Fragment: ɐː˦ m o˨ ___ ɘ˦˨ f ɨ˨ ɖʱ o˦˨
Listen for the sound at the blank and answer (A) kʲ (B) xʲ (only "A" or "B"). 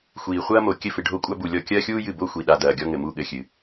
A